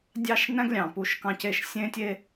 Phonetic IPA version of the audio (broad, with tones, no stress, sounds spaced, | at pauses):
dʲ ɑ˥ ʃ n æ̃˥ ɡ lʲ ɑ̃˩ p u˧ ʃ k ɑ̃˧ c e˧ ʃ sʲ ẽ˥ tʲ e˥